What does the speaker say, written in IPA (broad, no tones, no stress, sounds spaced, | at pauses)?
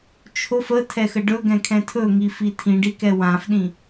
t͡ʃʰ o f ə tʰ ɛ x ə ɖ ɵ ɡ ɛ̃ kʰ ɛ̃ tʰ ɵ ŋ i f i tʰ ĩ ɖ i k ɛ w ã f ɗ ĩ